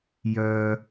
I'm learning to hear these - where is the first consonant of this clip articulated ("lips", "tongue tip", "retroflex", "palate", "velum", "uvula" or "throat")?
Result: palate